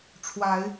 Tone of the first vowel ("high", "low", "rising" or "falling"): rising